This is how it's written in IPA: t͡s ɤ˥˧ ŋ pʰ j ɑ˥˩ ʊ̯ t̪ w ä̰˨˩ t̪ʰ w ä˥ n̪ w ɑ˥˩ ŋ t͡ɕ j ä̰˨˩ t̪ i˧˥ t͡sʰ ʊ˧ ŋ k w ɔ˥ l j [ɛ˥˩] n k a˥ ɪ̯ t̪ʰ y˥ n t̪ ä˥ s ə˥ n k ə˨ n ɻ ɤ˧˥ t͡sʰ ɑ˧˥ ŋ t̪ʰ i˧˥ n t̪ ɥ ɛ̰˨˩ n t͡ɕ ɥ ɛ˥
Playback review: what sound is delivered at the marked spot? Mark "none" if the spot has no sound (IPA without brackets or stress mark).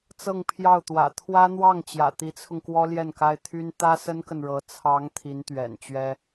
ɛ˥˩